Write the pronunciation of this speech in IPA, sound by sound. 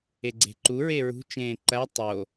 e ɡ͡ǀ e̤ ǃ u ɹ e ɹ ṳ t͡ʃ ẽː ǃ æ tˤ o

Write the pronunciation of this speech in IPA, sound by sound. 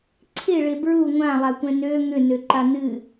ǀʰ ɪ ɭ ɪ b ɹ u ŋʷ ã lˠ a kʷ ɛ̃ n ø ŋ ʏ n ø ǃ a n ɨ

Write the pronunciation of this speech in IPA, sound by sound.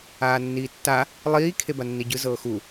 aː nː iː tː a | lˠ iː kʰ e b a nː i ɟ ɯ z ɤː x u

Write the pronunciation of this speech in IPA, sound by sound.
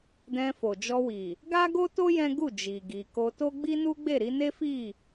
d ɛ̃˧ f o˨ d͡ʒ ɔ˧ w i˨ | ɡ a˦ ɡ o˦ t o˦ j ɛ̃˦ ɡ u˦˨ d͡ʒ i˨ ɡ i˨ k o˧ t o˦ ɡ͡b i˦ n u˦ ɡ͡b e˦˨ ɾ i˨˦ n e˦ f i˦˨

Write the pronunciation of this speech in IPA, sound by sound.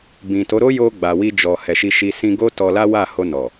b ĩ˨ t o˨˦ ɾ o˦ j o˧ ɡ͡b a˨ w i˧ d͡ʒ ɔ˨ h ɛ˨ ʃ i˧ ʃ i˧ s ĩ˧ ɡ o˦ t ɔ˧ l a˦ w a˦˨ h o˧ n ɔ˨

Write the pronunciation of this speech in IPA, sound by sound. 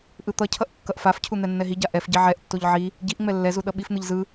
ʔ ɯ t̪ ʌ cʰ ʌ ʔ kː ʌ ʔ f a f cʰ u n̪ ɛ nː ɛ ɦ i ɟ a ʔ ɛ f ɟ i ʕ ɛ ʔ tː o ʎ ʕ i | ɟ i ʔ ŋ͡m ɛ lː ɛ z u ɗ ʌ ɓ i f n̪ ɯ ʎ z ɯ

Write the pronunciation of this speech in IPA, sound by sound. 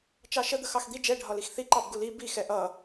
t͡ʃ ɑ ʃ ə d̪ ə x ɑ x d̪ i d͡ʒ ɛ ɖʱ ɒ l i x θ i ǃ ɑ b ɡ u l i b i x ɛ ʔ ʌ

